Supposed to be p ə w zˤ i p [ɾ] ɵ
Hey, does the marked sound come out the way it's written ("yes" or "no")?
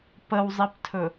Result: no